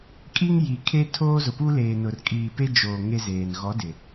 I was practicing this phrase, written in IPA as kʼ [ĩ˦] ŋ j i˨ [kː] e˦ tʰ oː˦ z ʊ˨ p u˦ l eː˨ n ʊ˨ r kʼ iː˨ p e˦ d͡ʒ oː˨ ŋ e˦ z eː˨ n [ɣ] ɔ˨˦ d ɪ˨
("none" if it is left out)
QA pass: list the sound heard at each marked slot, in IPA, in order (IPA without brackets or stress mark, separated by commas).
i˦, kʰ, ɣ